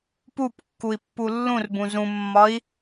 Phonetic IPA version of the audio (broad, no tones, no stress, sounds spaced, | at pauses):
p u p kː u i̯ pː u lː ũ r b ũ z ũ mː ɒ i̯